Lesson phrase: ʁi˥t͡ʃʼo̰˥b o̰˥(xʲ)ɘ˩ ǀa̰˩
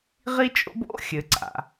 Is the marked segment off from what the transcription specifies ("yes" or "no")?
no